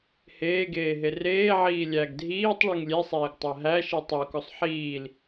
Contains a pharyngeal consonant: yes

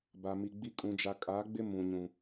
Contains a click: no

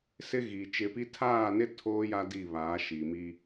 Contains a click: no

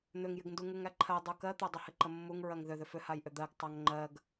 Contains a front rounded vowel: yes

